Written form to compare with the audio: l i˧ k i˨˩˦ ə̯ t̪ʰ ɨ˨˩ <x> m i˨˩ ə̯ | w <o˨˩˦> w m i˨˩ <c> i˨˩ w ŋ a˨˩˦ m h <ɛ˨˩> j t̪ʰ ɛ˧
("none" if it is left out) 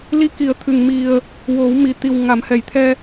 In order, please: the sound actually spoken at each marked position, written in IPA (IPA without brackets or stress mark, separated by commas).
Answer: ŋ, o˨˩˦, t̪, ɛ˨˩